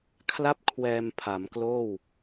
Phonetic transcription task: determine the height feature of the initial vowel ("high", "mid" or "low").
low